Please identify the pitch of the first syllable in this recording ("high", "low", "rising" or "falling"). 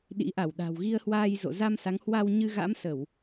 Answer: rising